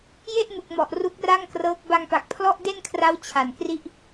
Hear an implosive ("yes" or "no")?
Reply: no